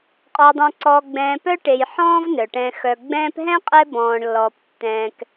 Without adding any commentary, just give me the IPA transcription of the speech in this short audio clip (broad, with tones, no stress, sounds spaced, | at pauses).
qʼ ɔ˨ dˤ œ̃˨ ǀ ɔː˨ ɡ͡b ɛ̃ː˨ p œ˦ ʈ e˨ j ħ ɔ̃ː˦ v n œ˩ ʈ ɛ̃˨ x œ˨ ɡ͡b ɛ̃ː˦ p ɦ ɛ̃˥ qʼ ɛ˦ b ɔ̃ː˨ ɳ lː ɔː˨ p tː ɛ̃ː˨ k